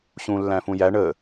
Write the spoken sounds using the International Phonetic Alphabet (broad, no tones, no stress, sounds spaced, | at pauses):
ɕ ũ lː æ̃ f ũ j æ ɳ ə